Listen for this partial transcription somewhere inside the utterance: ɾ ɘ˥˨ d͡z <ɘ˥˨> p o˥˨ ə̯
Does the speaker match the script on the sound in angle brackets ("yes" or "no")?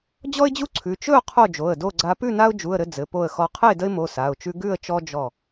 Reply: no